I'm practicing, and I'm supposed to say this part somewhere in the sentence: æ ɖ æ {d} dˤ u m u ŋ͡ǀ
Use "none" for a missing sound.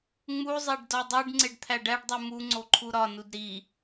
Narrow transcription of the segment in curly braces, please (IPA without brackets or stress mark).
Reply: ɖ